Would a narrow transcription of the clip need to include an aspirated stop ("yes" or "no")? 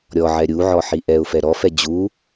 no